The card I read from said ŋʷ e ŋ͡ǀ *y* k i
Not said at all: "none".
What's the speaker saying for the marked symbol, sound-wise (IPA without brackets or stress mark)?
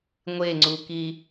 u